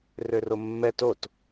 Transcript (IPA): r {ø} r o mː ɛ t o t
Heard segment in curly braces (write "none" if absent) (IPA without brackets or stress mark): ø